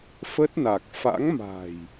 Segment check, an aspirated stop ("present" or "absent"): absent